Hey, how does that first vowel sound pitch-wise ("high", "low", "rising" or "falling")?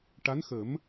rising